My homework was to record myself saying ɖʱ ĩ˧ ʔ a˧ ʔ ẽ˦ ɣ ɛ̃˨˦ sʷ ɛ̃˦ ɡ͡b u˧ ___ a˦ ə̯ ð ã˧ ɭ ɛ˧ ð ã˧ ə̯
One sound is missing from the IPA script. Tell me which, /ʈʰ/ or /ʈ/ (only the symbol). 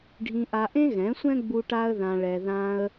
ʈ